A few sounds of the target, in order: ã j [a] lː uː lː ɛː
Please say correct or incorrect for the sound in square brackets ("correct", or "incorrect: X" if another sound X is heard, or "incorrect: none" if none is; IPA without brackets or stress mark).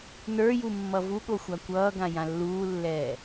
incorrect: ã